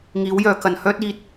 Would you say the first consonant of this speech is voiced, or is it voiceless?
voiced